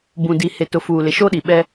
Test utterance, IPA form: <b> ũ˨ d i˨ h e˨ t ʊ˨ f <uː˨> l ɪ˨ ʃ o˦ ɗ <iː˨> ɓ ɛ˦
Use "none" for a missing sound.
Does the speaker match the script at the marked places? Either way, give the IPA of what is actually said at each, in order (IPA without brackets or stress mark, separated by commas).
b, uː˨, i˨